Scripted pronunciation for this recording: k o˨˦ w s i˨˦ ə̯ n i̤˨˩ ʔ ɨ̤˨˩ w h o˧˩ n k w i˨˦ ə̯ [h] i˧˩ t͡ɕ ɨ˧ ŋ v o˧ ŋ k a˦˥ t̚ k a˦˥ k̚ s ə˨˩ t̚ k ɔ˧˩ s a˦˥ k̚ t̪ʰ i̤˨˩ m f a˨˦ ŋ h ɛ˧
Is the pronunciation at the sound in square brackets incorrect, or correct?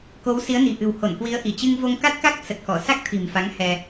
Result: incorrect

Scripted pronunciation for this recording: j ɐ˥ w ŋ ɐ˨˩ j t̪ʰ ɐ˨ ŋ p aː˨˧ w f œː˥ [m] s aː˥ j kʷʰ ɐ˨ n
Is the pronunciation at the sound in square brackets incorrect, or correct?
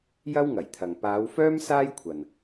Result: correct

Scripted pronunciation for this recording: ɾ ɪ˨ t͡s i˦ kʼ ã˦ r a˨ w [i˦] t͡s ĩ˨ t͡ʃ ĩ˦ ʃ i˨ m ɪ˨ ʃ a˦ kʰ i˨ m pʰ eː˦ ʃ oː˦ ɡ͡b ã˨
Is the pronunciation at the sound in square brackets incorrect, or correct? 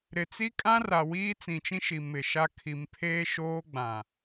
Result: incorrect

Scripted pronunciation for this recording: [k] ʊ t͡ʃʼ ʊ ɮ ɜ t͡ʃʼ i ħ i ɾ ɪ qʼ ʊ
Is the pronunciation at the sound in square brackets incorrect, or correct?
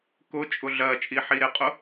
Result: correct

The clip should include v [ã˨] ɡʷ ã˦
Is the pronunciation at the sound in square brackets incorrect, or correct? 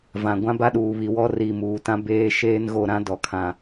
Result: correct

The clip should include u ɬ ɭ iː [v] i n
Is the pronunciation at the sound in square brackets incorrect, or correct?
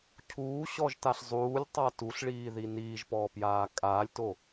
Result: incorrect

